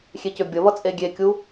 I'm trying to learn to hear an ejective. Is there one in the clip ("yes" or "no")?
yes